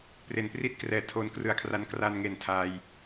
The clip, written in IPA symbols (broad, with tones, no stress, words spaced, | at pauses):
pre˩˦npri˥˩t̚ krɛː˩˦ tʰoː˧nkrɯ˨˩a̯kʰra˧n kra˧nŋe˨˩n tʰaː˧j